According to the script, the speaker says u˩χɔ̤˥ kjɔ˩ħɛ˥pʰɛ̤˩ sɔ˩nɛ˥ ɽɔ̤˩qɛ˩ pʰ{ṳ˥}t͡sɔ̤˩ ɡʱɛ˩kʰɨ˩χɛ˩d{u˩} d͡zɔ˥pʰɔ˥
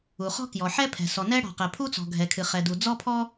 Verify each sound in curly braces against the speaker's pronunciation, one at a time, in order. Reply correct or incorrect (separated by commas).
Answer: incorrect, correct